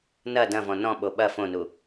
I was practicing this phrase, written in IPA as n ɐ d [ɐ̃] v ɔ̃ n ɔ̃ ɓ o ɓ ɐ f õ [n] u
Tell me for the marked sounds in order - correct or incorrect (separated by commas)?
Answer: correct, correct